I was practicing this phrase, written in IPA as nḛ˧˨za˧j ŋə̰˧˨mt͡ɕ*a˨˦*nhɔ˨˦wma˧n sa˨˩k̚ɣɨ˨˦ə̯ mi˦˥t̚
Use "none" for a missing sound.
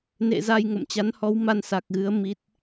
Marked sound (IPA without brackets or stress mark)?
a˨˦